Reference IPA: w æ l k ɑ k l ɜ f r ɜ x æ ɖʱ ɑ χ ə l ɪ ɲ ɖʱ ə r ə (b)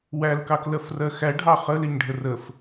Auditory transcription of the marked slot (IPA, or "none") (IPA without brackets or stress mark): f